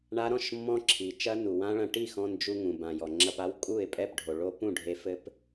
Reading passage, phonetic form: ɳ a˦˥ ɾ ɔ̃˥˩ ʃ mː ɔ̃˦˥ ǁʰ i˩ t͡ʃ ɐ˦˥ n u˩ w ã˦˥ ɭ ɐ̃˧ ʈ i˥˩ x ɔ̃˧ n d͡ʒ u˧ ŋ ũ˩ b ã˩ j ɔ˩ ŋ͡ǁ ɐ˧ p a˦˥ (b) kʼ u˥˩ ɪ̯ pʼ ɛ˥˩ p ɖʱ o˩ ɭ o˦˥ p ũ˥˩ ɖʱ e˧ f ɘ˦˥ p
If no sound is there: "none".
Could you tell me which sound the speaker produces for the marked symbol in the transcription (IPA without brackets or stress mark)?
w